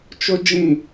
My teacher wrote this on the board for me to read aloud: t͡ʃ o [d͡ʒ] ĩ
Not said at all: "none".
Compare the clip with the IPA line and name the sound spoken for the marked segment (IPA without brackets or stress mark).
d͡ʒ